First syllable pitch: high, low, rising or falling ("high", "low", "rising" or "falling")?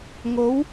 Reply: rising